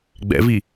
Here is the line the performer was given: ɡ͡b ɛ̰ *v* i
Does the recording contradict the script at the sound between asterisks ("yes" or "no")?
no